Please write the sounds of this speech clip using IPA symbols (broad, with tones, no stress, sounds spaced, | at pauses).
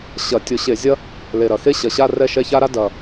ɕ ɐ˧˩˧ tʲ ʊ˧˩˧ ɕ e˧˩˧ zʲ ɐ˥ | l e˨˩ ɾ ɐ˨˩ x e˥ ɕ ɐ˨˩ ɕ a˥˧ r ɛ˥˩ ʃ ɛ˥˧ ç a˥ ɾ a˥ d ɐ˨˩